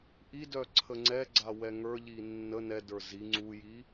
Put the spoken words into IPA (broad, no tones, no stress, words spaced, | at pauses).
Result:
ʔidœ ǀʰəŋ͡ǀɛɡ͡ǀa wɛŋə˞ʎi nːə nɛdə˞ zi ŋ͡ǀuji